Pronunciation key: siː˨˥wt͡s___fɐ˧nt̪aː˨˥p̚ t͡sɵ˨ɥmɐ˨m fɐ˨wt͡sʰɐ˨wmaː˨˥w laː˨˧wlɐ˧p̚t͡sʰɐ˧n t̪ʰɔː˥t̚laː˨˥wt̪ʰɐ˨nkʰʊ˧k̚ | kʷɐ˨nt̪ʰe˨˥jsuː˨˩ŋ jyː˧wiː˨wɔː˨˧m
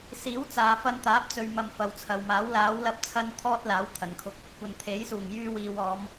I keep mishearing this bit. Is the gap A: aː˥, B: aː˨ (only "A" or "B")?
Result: B